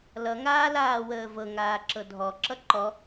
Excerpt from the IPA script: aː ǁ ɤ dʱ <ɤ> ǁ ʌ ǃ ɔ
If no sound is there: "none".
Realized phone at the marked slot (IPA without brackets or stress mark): ɔ